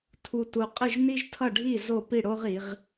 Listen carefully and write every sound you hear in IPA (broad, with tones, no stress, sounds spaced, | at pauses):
tʰ u˧ t u˧ qʼ ɯ˥˧ ʒ n̪ i˥ ʒ tʰ ʌ˥˧ ɖʱ i˥˧ z o˥˧ p i˥˧ ɽ o˥ ʁ i˩˧ ʁ